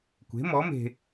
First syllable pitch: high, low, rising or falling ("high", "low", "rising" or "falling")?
rising